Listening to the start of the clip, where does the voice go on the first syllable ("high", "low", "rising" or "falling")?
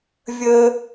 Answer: high